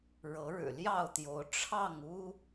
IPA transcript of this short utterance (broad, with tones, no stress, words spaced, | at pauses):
ɻɤ˨˦ɻɻ̩˨˩ljɑ˥˨ʊ̯t̪jo˨˦ʊ̯ ʈ͡ʂʰɑ˥˨ŋu˦